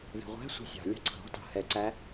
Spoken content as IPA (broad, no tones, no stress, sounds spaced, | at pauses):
ð ɛ̤ ʁʷ æ̤ sʷ ɑ̤ sʲ ɑ̤ lʲ ɑ̤ ǀ ɑ̤ ɾ ɔ̤ t ɑ̤ h ɛ ǀ æ